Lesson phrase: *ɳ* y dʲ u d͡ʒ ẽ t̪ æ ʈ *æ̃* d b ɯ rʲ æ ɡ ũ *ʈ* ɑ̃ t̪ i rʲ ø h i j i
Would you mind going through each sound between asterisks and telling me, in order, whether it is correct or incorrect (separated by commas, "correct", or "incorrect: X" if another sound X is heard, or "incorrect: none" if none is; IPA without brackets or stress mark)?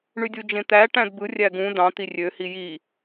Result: correct, correct, incorrect: d